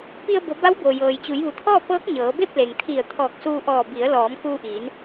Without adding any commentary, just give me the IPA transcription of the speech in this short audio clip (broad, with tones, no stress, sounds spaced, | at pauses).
p i˧ ə̯ b o˩˧ b a˧˥ w b o˩ j ɤː˩ j t͡ɕ u˩˧ j ʋ u˩ t̪ʰ ɔː˥˨ p ɤː˧˥ k̚ ɲ ɤː˩˧ b e˥˨ p̚ l e˩ ŋ t̪ʰ i˧˩ ə̯ t̪ʰ ɔː˧˩ k̚ s uː˧ ʔ ɔː˧˩ b i˩˧ ə̯ l ɔː˩˧ m k uː˧ ʔ iː˩˧ n